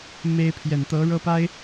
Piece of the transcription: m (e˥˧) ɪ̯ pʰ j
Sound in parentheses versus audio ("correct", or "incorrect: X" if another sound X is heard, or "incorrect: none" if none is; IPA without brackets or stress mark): incorrect: e˥